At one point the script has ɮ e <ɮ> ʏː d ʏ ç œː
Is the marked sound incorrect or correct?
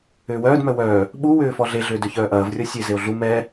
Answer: correct